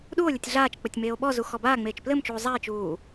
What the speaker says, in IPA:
ɗuo̯lʲɘtʲ ɮaːt͡ʃk͡pɘtʲ meːo̯ɓɔzu xɔbaːŋ͡meːt͡ʃ plɘmt͡ʃuː zˤae̯t͡ʃuː

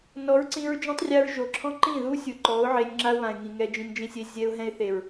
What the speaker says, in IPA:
nɔ˨˦ɹǀĩ˧ɹ d͡ʒɔ̃˦tˤrʲa˧ɹʒo˨ǁʰɔ̃˦ ǃĩ˦˨ðu˦ sʲu˨ǃɔ˨˦ʊ̯ʕe˧nʲ ŋ͡ǁa˦ʊ̯βã˨ɪ̯ŋĩ˨ ŋɛ˧d͡ʒĩ˧nd͡ʒĩ˦sʲe˦ zʲɛ˧ʊ̯ɦɛ̃˧ɪ̯θe˨ɹ

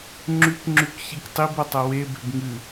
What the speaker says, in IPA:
ŋ͡ǁʉkŋ͡ǁʉkçik tˤibɐtˤɐ webe̤b ŋɨ

